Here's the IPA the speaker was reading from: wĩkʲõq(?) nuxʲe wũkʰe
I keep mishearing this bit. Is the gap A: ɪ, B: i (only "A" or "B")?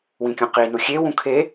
B